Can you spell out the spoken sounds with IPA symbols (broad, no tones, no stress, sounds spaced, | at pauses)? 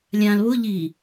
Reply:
lʲ ã l β ʊ ʎ i